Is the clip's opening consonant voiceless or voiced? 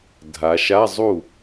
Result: voiced